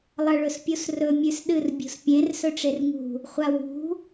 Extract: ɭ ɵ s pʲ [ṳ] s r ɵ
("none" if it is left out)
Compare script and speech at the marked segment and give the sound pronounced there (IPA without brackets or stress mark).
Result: u